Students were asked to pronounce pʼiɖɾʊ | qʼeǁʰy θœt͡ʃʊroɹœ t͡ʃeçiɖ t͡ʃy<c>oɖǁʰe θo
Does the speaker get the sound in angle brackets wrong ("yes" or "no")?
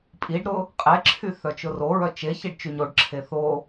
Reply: yes